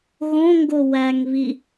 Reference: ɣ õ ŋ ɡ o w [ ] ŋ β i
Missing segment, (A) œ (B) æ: B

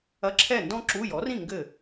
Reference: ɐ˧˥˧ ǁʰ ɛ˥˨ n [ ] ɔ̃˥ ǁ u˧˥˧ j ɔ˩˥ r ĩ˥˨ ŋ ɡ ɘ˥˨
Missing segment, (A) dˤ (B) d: B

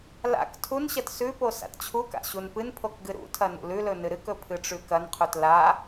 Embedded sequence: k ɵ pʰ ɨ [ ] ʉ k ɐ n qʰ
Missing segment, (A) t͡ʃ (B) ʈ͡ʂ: B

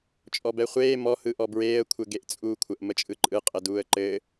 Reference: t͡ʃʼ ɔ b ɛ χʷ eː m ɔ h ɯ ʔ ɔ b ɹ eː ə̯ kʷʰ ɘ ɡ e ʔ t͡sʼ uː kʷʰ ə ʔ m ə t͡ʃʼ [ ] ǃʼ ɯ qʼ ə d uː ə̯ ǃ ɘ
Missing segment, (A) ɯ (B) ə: A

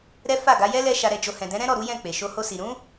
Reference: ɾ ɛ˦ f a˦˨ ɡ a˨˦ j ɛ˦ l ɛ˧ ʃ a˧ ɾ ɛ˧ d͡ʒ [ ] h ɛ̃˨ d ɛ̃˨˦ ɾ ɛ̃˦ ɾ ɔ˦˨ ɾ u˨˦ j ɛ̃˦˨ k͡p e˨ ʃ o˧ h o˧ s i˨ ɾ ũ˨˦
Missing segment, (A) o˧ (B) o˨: A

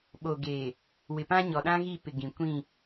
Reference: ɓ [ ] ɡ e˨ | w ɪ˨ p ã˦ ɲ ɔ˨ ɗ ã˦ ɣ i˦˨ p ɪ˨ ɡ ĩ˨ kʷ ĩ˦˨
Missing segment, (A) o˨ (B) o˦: A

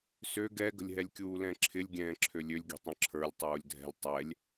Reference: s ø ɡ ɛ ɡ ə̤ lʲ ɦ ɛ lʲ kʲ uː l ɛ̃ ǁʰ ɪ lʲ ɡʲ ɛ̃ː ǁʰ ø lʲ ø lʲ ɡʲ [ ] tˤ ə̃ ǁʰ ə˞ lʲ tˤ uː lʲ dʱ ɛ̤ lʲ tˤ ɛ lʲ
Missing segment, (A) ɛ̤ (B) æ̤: A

